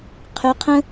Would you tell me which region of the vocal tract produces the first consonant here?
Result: uvula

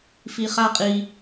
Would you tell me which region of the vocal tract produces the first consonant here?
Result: lips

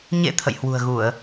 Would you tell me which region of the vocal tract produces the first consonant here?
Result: palate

